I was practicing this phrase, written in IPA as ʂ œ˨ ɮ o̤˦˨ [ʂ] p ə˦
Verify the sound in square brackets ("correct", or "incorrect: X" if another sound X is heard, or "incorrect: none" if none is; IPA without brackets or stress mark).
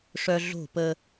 incorrect: none